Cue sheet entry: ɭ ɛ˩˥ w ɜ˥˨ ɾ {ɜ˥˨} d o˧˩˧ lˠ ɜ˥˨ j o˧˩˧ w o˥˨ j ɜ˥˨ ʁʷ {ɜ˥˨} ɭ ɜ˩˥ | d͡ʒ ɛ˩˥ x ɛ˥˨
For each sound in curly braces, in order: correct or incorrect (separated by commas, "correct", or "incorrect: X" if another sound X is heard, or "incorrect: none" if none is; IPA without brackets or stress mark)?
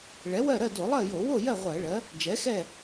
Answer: correct, incorrect: ɜ˧˩˧